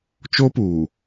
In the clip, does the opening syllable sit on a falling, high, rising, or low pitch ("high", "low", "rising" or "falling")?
high